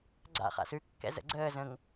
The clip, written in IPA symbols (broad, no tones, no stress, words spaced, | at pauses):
ɡ͡ǀa̰χa̰s ʉkːɛ̰ zə̰ɡ͡ǀəː zə̃ŋ